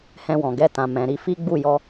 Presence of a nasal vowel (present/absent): present